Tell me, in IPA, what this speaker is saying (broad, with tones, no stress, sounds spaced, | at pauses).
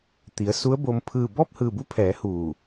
t̪ i˩˧ ə̯ s u˧˥ ə̯ b o˧ m pʰ ɯː˧˩ b ɔː˥˨ p̚ h ɯː˧˩ b u˧˥ pʰ ɛː˩˧ h uː˧˩